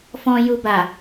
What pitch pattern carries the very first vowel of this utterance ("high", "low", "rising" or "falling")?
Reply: low